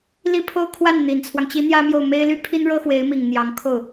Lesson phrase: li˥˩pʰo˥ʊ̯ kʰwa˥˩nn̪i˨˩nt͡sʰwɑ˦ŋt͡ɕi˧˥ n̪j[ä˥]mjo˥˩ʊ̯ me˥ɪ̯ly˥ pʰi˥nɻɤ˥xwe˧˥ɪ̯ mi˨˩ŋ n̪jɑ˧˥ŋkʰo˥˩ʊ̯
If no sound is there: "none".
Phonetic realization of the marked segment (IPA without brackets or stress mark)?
ä˥